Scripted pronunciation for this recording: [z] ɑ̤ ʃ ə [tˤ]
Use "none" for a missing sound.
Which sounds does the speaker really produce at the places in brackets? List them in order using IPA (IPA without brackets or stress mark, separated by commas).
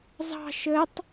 z, tˤ